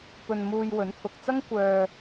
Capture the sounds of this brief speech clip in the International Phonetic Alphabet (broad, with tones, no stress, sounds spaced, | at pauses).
p ɵ˧ n m uː˧ j w ɵ˨˥ n t̪ʰ ʊ˨ k̚ t͡s ɐ˥ ŋ kʷ œː˧